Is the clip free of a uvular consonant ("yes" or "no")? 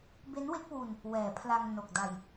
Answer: yes